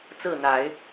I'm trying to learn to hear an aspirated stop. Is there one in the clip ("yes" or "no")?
no